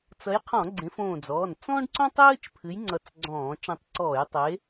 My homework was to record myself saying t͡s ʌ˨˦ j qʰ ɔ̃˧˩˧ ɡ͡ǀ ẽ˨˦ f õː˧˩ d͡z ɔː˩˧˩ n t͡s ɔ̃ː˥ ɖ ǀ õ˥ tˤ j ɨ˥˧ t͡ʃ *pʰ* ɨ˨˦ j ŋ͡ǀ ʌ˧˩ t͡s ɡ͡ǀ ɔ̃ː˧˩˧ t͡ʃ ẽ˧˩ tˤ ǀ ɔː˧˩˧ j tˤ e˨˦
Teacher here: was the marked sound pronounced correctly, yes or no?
yes